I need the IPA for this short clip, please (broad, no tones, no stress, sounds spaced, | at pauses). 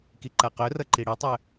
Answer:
k i ǃ a q œ r ʌ ǃ i ɽ i tˤ œ